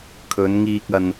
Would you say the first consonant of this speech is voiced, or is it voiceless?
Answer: voiceless